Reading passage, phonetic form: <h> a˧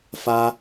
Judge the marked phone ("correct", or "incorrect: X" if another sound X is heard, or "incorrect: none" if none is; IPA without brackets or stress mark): incorrect: f